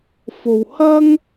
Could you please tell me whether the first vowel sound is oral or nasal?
oral